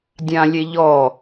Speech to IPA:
dʲ ã lʲ e ʎ ɔ

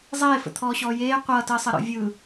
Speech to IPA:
zˤ eː f ə̰ t̪ʰ ɔː ɕ ɔː j eː qʷ ʌː t əː sˤ ʌ ɾ ɔ̰ vʲ ɯ

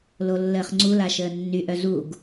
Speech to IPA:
l o lː əː χ ŋ͡ǀ u l a ʃ əː nː y ʔ œ z u ɡ

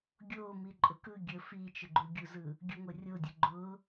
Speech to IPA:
ɡʲ o m i ǃʼ ʊ k ɯ ɡʲ ə f i t͡ʃ ʊ ɡ͡ǃ u ɡʲ u z ɯ | ɡʲ u ŋʷ ə rʲ o dʲ ʊ ɡ͡ǃ ʊ

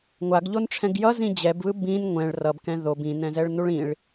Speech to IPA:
ŋʷ a ɡ ʎ o n ʈ͡ʂʰ ɛ̃ ɡ j ʌ z ĩ d͡ʑ ɛ b β ɯ b ĩ n ŋʷ ɛ̃ ɭ r ʌ b k ɛ̃ ð o b ĩ n ɛ̃ z ɛ ɭ n u ɭ ĩ ɭ

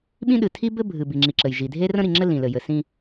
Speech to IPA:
ɓ ĩ˦ ɗ ɨ˨ tʰ i˦ b ɘ˦ bʱ ɨ˨ b i˨ ŋ͡ǁ i˨ ǁ ɘ˨ j ʒ i˨ dʱ e˦ r ə̃˦ ɾ i˨ ŋ͡ǁ ɘ˦ l ĩ˨ l ɘ˨ j ɘ˨ s ĩ˦

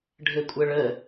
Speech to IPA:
ɖʱ ɘ kʷʼ ə ɭ ə

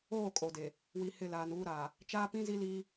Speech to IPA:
oː˦˨ kʼ o˨ d e˨ | w i˨ h ɪ˦˨ l aː˨ n uː˦ ɾ aː˨ | t͡ʃ aː˦ p ĩ˦ z i˦ l iː˦

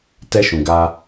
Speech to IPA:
t ɛ˧ ʃ ũ˨ ɡ a˧

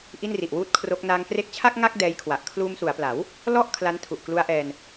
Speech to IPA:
ʔ i˥˩ n r i˨˩ ʔ w uː˥˩ t̚ kʰ r o˦˥ k̚ n aː˧ ŋ k r e˦˥ k̚ t͡ɕʰ a˥˩ k̚ ŋ a˥˩ k̚ d ɛː˦˥ j kʰ w a˨˩ ʔ kʰ l uː˧ m s u˩˦ a̯ p l a˩˦ w | l ɔ˥˩ ʔ kʰ l a˦˥ n tʰ u˨˩ ʔ k l u˦˥ a̯ ʔ ɛː˧ n

